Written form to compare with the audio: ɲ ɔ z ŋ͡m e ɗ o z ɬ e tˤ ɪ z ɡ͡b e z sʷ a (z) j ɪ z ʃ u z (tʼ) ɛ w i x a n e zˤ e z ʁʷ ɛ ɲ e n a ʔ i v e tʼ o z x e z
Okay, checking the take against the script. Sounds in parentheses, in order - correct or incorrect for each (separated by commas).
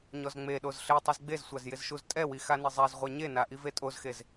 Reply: correct, correct